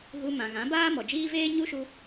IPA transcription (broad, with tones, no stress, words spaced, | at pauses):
ɣu˧mã˨ɣã˨˦ baː˦mɔ˨d͡ʒiː˦ veː˦ɲu˦ ʃu˧